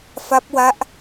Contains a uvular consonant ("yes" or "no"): no